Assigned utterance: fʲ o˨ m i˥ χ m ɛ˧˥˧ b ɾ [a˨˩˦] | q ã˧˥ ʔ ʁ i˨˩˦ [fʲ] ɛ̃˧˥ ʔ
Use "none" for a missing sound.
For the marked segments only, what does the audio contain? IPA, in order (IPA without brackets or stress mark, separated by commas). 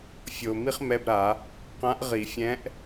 a˨˩˦, fʲ